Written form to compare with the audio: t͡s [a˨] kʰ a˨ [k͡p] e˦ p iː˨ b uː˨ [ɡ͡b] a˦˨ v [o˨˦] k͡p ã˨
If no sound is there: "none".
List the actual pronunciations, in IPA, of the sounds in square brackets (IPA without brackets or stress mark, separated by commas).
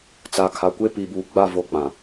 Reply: a˨, kʷ, ɡ͡b, o˦